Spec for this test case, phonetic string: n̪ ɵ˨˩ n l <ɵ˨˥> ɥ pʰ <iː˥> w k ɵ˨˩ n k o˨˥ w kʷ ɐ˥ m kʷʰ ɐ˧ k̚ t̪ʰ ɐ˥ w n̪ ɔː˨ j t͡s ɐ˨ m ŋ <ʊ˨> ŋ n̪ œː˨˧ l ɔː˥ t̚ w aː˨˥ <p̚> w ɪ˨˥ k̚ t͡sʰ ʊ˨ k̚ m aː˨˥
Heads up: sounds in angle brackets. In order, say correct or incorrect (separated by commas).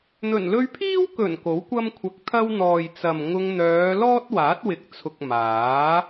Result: incorrect, correct, incorrect, incorrect